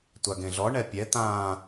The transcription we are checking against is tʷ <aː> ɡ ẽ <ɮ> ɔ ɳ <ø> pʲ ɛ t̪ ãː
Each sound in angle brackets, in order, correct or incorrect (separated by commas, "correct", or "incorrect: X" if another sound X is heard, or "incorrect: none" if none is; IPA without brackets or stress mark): incorrect: a, correct, incorrect: ɛ